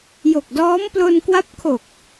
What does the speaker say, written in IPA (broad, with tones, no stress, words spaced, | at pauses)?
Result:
jo˨˩k̚dɔː˦˥m plo˧nkwa˦˥p̚kʰo˨˩k̚